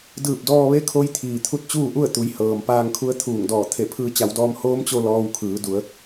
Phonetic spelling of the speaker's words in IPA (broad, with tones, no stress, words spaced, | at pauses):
dɯː˧˩p̚dɔː˧ʋe˧˥kʰo˧j t̪ʰiː˩t̪ʰu˧˥t̚t͡ɕuː˥˨ʔu˥˨ə̯ t̪u˩˧j hɤː˩mpaː˧ŋkʰu˧˥ə̯ t̪ʰuː˧˩ŋ dɔː˧˩ t̪ʰe˧˩pʰɯː˧ t͡ɕa˩˧wdɔː˧m hoː˧˥mt͡ɕo˧ lɔː˧wkʰɯː˩˧ du˩˧ə̯